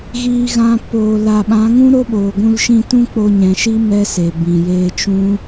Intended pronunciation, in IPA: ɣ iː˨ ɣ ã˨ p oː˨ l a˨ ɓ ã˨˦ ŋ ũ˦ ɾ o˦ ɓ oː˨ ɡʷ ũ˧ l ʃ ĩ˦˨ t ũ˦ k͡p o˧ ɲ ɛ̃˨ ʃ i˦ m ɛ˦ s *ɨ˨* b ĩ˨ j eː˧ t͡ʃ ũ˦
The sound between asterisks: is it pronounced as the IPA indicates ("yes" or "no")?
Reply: no